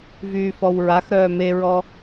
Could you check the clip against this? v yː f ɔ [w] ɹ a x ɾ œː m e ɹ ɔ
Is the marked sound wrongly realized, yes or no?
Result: no